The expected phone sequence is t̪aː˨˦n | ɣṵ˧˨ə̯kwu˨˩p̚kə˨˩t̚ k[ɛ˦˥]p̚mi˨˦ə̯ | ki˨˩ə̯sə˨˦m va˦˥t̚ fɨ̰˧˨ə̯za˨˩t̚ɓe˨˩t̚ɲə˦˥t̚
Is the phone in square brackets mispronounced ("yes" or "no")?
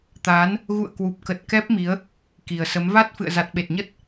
no